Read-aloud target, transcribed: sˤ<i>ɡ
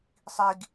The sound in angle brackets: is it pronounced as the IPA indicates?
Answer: yes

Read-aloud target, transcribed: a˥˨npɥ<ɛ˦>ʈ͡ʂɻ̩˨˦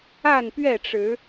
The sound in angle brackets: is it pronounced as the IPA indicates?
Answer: no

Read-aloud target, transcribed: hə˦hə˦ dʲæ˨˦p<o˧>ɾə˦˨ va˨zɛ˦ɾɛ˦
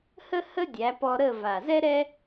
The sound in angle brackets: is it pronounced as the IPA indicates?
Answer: no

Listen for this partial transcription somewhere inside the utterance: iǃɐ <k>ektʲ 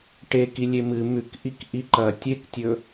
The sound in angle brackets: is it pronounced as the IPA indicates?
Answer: no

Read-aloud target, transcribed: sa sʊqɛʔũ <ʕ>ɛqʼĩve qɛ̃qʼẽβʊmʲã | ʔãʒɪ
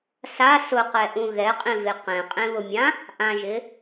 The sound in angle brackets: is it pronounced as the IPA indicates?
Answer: no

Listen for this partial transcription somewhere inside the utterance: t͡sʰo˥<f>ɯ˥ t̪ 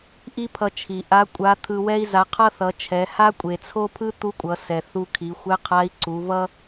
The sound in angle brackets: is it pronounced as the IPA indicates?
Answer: no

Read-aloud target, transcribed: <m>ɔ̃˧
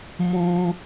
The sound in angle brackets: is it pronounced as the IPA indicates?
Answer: yes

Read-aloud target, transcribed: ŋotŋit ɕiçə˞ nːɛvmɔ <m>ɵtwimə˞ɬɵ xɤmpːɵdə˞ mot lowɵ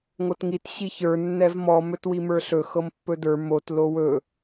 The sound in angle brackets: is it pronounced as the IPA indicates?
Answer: yes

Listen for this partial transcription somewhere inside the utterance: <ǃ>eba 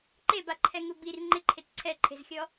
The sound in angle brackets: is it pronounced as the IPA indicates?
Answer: yes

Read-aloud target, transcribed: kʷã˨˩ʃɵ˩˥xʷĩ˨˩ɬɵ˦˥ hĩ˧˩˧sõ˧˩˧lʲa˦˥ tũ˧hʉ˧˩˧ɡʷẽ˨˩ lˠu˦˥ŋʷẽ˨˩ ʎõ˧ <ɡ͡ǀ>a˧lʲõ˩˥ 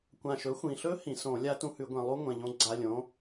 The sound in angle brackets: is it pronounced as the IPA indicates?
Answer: yes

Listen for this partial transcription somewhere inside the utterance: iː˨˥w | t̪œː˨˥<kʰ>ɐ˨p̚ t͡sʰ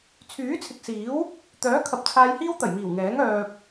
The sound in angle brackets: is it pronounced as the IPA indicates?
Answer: yes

